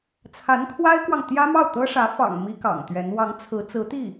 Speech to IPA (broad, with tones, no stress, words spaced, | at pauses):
t͡sʰa˧˥nkʰwa˥ɪ̯kwɑ˨ŋ t̪jä˥mɑ˥˩ʊ̯t̪ɤ˥ʂä˧˥ fɑ̰˨˩ŋ mi˥kɑ̰˨˩ŋt̪ɥɛ˧˥n wɑ˧˥ŋt͡sʰɹ̩˧˥ t͡sɹ̩˧˥t̪i˥˩